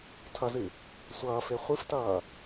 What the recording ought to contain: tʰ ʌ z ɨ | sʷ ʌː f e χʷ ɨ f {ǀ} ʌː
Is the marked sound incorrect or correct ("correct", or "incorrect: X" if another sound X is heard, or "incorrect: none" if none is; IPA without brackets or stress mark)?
incorrect: t